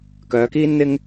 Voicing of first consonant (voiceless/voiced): voiceless